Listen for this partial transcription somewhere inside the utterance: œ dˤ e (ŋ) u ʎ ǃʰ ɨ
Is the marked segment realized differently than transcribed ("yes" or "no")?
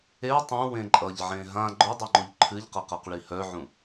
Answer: yes